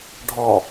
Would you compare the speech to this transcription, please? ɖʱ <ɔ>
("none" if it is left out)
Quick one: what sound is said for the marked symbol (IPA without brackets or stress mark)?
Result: ɔ